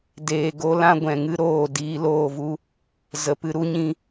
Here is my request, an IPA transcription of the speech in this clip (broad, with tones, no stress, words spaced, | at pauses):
deː˨ɡo˧ lã˦ɡʷɛ̃˨ŋɨ˦ ɾoː˦˨ diː˧loː˦˨vu˦ | zə˨˦pɨ˧ ɾu˧ɲĩ˧